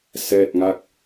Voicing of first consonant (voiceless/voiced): voiceless